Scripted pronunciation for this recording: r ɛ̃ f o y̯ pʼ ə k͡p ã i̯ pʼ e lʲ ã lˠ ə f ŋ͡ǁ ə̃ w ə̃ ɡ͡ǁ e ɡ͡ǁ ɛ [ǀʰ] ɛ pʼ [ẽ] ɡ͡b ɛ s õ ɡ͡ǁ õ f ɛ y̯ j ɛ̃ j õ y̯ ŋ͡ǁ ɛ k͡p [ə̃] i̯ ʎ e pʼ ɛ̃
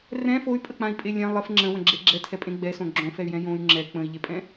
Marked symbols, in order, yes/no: no, yes, yes

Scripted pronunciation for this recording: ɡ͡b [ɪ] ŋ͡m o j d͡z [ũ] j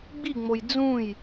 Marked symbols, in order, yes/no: no, yes

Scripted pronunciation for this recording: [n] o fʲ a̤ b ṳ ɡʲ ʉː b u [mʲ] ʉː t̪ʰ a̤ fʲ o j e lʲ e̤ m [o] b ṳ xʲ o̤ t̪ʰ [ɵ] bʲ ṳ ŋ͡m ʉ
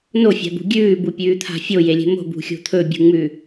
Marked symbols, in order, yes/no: yes, no, no, yes

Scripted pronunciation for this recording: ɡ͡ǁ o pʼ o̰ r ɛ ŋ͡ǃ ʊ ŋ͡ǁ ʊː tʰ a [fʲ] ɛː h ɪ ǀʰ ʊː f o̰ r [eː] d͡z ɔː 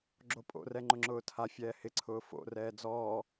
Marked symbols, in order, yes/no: yes, no

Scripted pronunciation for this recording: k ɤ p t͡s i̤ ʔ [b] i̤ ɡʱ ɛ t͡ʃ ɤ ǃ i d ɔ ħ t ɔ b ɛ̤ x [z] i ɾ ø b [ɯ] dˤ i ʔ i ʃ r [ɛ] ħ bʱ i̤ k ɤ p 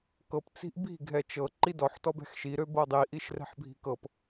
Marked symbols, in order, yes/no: yes, no, no, no

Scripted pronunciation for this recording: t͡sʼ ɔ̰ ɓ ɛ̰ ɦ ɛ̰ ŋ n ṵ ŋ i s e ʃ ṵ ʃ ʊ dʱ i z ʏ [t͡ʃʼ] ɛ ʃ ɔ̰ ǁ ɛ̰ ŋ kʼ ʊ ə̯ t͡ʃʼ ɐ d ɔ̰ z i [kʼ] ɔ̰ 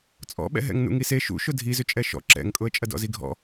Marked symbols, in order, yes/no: yes, no

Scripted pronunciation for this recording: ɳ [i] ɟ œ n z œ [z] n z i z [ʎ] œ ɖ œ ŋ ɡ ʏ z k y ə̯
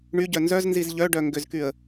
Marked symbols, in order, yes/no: no, yes, yes

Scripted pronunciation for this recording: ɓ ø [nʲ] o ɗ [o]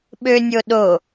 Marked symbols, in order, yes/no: yes, yes

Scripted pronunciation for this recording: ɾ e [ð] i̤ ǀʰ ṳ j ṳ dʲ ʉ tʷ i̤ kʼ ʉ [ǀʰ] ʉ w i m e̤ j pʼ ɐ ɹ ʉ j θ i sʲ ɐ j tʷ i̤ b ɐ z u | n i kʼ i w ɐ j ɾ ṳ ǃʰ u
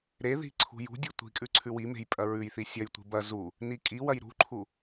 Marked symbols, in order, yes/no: yes, yes

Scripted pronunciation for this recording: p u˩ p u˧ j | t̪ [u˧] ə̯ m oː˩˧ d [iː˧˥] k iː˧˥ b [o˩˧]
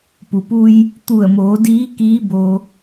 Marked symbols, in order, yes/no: no, yes, no

